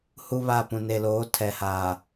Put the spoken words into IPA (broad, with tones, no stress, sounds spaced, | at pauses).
h u˦ β a˦˨ p ũ˨ n e˨ l oː˨˦ tʰ ɛ˨ h aː˨